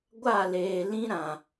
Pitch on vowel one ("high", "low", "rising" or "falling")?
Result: falling